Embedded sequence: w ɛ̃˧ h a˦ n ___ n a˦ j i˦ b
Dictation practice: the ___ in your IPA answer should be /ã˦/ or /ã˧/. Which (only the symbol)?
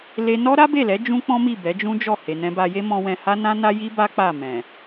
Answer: ã˦